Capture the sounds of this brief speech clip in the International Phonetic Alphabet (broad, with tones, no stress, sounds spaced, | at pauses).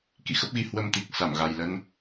k ḭ˧˨ x ə˦˥ p̚ ɣ i˨˦ h w ə˧ m t̪ i˨˩ k̚ s a˧˩ m ɣ a˨˩ j l ə˧ n